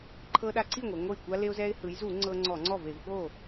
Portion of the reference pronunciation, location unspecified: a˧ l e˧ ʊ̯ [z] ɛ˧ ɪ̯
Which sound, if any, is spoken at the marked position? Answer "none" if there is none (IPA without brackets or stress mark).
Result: z